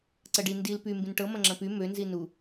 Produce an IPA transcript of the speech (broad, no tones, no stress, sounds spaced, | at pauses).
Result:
ǀ ɐ ɖ i n d i l p y m b ĩ n ʈ ɤ m ɐ̃ ŋ͡ǁ ɐ̃ p y m ø n z i n u